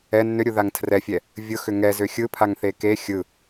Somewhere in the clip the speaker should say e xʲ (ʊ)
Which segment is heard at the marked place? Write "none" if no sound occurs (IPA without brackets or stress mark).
ɯ